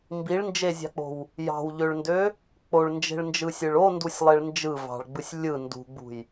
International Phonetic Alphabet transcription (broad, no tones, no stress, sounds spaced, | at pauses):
m b i ɭ n d͡ʒ e zʲ ɑ̤ k͡p o̤ w | j ɑ̤ w ʎ ø ɭ n d ø | k͡p o ɭ n d͡ʒ e̤ ɭ n d͡ʒ ɯ sʲ ɯ ɭ o n d u sʲ lˠ e ɭ n d͡ʒ ɯ v ɑ̤ ɭ ɡ͡b ɯ sʲ lʲ ɯ n d ṳ ɡ͡b ṳ j